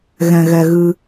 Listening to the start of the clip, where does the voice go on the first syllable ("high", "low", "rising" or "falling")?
low